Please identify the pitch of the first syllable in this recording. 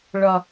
low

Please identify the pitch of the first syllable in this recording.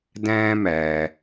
high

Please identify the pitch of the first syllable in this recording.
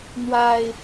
low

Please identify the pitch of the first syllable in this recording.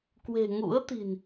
low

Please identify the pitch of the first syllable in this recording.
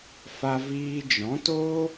high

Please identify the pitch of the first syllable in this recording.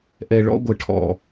low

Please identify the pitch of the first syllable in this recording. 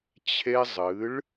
high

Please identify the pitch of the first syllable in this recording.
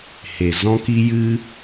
low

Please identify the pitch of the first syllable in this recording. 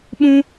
high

